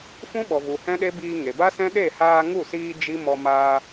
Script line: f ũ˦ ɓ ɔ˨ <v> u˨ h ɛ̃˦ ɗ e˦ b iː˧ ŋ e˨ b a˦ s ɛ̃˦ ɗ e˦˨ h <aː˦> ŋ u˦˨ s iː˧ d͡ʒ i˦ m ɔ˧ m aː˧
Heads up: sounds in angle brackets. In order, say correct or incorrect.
correct, incorrect

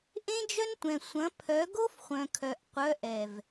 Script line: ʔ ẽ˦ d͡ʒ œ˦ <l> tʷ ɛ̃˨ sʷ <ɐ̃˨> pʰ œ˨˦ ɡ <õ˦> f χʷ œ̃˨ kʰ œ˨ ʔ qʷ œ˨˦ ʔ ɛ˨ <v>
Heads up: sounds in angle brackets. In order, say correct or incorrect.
incorrect, incorrect, incorrect, correct

